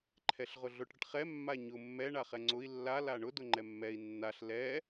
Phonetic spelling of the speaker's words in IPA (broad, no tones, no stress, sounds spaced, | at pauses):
ǃʰ ɛ ɬ ʁ ʊ ɮ ʊ ʈ ɽ ə ʈ χ ɛ mː a ɲ ʊ mː ɛ ɳ a χ ɛ ŋ͡ǀ ʊ i̯ lː a l a ɳ ʊ d ʊ ŋ͡ǃ ɛ mː ɛ i̯ nː a ɬ l ɛ